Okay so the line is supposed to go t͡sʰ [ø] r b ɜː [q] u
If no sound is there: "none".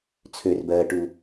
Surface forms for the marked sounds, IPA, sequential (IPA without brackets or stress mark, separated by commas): ø, ʈ